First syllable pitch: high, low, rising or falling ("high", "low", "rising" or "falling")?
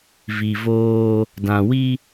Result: low